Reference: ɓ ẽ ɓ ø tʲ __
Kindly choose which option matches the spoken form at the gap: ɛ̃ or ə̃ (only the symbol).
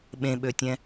ɛ̃